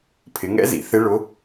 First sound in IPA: pʰ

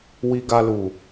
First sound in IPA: w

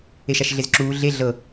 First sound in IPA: e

